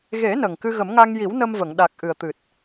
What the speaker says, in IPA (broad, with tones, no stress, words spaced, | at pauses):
ɣe˨˩˦ nə˨˩ŋkɨ˧ɣə˨˩˦mŋa˧ŋ ji˨˩˦w nə˧mvə˨˩˨ŋɗa˨˩k̚ ʔɨ˨˩ə̯t̪ɨ˨˩t̚